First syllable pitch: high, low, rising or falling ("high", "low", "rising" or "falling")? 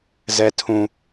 high